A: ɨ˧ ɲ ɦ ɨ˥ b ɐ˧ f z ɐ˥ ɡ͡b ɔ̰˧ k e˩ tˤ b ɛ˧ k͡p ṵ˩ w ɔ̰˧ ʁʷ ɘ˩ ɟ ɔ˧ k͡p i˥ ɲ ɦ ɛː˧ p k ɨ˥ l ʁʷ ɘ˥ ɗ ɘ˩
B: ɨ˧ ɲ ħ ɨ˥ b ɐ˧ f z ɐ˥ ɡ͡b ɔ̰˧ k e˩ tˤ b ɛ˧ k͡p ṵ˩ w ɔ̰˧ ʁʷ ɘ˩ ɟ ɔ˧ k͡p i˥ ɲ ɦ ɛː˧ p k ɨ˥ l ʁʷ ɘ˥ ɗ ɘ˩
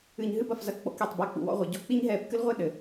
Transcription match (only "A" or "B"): A